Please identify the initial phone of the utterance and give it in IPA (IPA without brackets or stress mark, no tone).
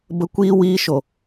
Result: b